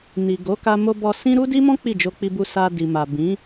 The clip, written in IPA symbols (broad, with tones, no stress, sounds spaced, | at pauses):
n i˨ ɡ o˨˦ k a˧ m o˧ b ɔ˧ s ĩ˦ ɾ u˦ d i˦ m ɔ̃˦ k͡p i˦˨ d͡ʒ o˧ k͡p i˧ b u˧ s a˧ d i˨ m a˨ b ĩ˨˦